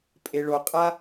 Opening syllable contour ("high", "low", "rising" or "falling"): high